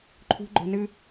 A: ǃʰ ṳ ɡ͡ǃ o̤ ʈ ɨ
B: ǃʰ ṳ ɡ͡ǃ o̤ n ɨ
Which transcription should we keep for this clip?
B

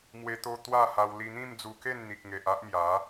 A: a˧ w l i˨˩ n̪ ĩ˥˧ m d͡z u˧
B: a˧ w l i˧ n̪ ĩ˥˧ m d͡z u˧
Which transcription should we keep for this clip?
B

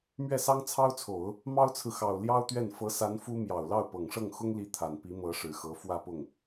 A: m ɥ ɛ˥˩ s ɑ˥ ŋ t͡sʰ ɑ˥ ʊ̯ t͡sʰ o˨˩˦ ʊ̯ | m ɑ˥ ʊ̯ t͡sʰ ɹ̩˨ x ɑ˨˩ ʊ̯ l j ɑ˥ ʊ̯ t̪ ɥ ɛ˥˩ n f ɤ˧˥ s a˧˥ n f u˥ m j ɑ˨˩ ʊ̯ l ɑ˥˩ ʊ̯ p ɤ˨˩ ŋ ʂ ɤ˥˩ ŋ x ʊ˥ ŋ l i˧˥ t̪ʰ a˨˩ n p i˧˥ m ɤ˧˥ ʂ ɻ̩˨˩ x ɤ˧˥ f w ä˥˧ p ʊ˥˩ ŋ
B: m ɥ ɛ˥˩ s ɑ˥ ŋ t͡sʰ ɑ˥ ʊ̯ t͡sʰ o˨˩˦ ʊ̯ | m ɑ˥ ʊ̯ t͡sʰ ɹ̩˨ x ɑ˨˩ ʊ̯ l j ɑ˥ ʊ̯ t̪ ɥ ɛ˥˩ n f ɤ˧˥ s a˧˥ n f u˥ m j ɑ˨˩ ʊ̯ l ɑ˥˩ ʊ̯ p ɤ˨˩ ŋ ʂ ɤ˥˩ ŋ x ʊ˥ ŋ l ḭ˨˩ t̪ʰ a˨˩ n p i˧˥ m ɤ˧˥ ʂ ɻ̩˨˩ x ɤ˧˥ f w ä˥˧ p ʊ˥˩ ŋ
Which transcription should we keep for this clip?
A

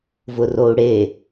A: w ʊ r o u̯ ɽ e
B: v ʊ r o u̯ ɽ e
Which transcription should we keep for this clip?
B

